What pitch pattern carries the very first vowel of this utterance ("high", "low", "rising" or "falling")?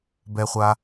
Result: low